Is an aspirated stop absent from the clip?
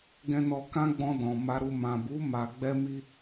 yes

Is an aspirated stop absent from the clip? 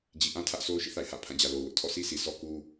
no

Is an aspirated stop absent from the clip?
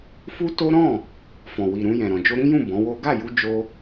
yes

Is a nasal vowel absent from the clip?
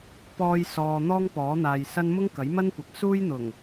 yes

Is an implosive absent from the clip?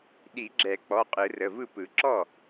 no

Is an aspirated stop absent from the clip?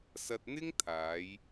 no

